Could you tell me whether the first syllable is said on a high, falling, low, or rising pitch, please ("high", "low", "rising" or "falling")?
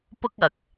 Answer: high